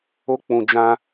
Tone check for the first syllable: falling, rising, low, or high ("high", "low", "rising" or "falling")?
high